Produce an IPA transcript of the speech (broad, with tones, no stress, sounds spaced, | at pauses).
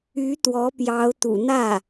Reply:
y˧˥ t̪ w ɔ˧˥ p j ɑ˧˥ ʊ̯ t̪ ṵ˨˩ n̪ ä˥˩